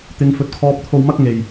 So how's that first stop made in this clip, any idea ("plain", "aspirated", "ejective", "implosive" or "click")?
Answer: plain